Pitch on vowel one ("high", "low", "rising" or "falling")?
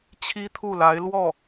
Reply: high